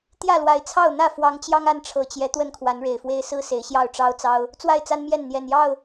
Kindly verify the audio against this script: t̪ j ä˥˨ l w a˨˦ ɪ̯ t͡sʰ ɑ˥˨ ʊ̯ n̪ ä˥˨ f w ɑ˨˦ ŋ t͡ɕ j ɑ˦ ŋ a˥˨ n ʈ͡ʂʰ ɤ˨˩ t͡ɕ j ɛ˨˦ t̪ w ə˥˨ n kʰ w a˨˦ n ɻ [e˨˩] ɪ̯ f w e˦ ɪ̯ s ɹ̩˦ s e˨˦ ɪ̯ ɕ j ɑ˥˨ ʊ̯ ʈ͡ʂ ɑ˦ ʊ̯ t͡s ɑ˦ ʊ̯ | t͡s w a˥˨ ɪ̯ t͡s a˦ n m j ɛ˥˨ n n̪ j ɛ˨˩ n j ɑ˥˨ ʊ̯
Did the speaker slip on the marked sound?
no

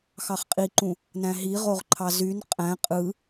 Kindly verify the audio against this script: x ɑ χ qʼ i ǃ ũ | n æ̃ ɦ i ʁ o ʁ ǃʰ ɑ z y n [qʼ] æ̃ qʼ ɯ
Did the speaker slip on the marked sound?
no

